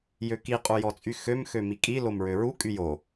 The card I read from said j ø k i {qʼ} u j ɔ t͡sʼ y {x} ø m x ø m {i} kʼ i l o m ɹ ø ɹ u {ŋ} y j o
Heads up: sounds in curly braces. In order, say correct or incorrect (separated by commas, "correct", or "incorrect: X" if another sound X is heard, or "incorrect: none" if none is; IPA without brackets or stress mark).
correct, correct, correct, incorrect: kʼ